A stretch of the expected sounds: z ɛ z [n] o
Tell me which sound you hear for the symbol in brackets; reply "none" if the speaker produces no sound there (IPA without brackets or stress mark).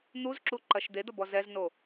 n